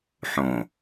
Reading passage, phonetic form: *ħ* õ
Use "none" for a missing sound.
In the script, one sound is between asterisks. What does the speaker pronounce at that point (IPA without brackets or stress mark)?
ħ